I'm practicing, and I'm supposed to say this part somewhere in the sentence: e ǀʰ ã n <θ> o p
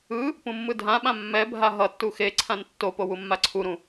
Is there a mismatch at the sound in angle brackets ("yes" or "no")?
yes